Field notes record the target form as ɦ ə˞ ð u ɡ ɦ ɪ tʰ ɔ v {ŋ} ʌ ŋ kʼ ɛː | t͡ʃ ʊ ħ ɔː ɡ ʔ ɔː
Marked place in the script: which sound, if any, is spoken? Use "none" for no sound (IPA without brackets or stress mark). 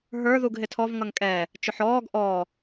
ŋ